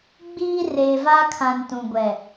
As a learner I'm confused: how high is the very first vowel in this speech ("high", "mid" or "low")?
high